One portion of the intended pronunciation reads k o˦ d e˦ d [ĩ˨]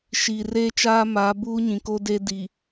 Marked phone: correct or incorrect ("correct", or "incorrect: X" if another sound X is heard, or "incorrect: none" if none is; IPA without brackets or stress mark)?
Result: incorrect: i˨